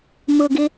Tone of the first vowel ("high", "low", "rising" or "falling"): low